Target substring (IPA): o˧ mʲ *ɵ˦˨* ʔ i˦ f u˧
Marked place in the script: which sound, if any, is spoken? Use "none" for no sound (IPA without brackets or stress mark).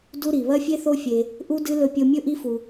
ɵ˦